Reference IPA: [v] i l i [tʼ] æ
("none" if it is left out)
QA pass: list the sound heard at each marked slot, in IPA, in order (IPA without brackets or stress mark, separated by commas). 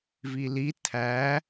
v, tʰ